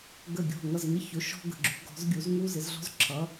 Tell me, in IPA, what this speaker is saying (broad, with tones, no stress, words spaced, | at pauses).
ɡə˧˩ ɡʲɔ̤˧˩ŋʌ˧˩zŋɪ˧˩çʊ˩˧ ʃɔ̤˧ɡə̤˩˧ɡ͡ǁṳ˩˧ ɡɔ̤˩˧zɡʲu˩˧z ŋu˧zɪ˩˧zɮɔ̤˧z ǁʰʌ˩˧